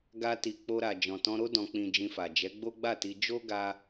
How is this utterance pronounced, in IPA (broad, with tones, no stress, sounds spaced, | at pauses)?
ɡ a˧ t i˨ k͡p o˧ ɾ a˨ d͡ʒ ɔ̃˨ t ɔ̃˧ ɾ o˦ d ɔ̃˧ k͡p ĩ˧ d͡ʒ ĩ˧ f a˨ d͡ʒ ɛ˨˦ ɡ͡b o˦ ɡ͡b a˦˨ t i˧ d͡ʒ o˦ ɡ a˧